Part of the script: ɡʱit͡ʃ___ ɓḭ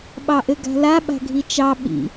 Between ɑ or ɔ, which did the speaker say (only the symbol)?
ɑ